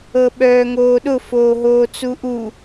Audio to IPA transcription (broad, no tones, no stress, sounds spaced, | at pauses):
ɤ ɓ œː ŋ oː ɗ ʊ f oː ɦ oː t͡s u ʔ u